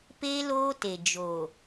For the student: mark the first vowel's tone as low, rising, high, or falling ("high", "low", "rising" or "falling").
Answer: high